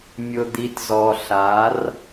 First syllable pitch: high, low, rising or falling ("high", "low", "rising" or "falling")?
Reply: low